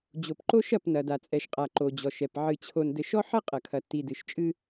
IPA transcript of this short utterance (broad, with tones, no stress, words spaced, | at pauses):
d͡ʑo˨pǃo˦ʃɐ˦˨p nɐ˨da˨t͡sʼɛ˨ʃqʼa˨ ǃo˨d͡ʑɔ˨ʃɛ˨p ʕɨ˨t͡ɕʰo˨n dɘ˨ʃɔ˦ħɐ˦ qʼɐ˨kʰɐ˨tːi˨ dɨ˨ʃt͡ʃʼɨ˦